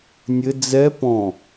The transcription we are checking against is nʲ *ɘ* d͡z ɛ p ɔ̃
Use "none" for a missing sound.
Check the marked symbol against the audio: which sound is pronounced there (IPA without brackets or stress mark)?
ɘ